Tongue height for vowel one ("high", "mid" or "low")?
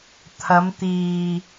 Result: low